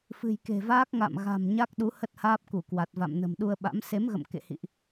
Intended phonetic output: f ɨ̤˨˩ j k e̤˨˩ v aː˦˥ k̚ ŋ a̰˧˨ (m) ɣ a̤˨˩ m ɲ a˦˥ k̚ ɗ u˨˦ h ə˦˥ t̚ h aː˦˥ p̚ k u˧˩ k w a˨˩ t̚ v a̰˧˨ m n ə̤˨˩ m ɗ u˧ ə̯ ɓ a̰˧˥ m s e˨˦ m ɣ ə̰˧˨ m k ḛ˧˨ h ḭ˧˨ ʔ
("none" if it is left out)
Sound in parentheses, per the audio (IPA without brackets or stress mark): m